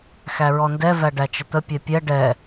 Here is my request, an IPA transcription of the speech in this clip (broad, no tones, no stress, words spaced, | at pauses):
xæɹɔndɛ væɖæt͡ʃət̪ə pʲɛpʲɛ ɖɛ